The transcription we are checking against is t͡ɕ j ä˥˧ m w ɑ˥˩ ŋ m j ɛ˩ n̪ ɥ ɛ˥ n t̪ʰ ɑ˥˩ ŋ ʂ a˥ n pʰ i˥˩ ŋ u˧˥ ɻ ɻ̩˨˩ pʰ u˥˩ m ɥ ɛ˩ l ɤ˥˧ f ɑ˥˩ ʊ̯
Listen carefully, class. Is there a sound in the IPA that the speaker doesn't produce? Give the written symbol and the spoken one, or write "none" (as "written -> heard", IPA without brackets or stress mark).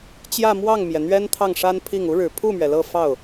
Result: none